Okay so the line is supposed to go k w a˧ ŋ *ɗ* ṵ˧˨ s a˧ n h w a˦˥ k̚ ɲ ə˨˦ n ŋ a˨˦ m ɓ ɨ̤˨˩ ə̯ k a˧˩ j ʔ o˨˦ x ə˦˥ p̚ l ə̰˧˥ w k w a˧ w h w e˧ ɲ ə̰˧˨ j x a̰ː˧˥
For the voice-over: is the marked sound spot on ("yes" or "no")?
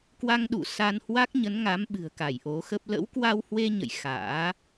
yes